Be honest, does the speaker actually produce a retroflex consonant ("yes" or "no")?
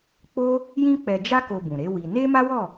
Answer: no